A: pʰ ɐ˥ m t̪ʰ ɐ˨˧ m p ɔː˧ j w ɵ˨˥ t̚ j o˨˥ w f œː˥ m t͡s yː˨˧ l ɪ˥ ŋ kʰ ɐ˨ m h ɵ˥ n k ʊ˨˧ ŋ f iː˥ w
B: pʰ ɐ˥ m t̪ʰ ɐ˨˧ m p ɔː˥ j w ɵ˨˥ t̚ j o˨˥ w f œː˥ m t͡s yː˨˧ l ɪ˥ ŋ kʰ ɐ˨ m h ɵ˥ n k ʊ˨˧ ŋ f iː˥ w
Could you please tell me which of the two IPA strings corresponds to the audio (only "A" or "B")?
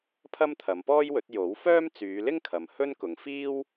B